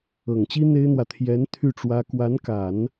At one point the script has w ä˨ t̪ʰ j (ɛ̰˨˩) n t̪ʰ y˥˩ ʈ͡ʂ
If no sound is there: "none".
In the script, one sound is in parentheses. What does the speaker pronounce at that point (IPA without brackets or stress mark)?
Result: ɛ˧˥